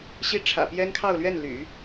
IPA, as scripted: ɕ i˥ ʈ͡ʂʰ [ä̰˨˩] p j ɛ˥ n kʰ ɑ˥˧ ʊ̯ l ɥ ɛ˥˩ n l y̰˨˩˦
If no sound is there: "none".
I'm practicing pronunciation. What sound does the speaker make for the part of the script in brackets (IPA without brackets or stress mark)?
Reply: ä̰˨˩